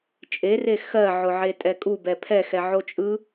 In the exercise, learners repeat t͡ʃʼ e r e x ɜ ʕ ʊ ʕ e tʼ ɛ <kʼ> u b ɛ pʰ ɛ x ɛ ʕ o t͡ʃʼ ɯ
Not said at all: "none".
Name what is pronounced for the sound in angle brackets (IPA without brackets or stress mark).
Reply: kʼ